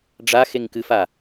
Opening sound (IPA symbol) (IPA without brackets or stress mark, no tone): ɖ͡ʐ